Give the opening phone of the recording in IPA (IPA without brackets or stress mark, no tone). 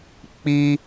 k͡p